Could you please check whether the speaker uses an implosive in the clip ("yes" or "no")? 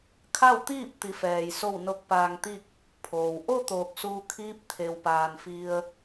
no